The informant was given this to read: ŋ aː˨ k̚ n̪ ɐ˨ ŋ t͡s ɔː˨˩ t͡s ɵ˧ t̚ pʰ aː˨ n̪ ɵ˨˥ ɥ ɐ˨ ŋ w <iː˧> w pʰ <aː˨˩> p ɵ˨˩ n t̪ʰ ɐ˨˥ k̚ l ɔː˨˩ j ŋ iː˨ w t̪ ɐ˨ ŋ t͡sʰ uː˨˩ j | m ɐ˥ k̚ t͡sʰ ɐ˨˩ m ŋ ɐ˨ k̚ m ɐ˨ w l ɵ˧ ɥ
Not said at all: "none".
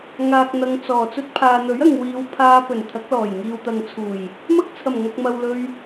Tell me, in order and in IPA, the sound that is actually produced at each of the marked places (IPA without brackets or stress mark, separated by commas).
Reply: iː˨˧, aː˧